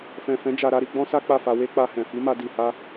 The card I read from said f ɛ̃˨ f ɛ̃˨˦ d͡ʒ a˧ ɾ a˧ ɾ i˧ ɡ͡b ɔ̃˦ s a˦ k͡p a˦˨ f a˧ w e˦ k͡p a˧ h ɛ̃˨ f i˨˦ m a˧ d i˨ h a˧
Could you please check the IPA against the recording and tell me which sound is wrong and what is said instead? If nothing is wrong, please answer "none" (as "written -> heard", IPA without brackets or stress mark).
none